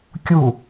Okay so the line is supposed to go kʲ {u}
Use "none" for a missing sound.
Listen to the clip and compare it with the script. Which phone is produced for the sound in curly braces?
u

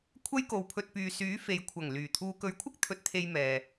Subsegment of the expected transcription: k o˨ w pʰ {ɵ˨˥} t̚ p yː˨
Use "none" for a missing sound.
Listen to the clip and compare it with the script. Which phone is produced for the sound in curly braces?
ɵ˧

